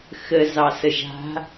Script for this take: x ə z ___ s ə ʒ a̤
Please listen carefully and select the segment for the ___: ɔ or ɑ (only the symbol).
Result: ɑ